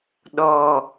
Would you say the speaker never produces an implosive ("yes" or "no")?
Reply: no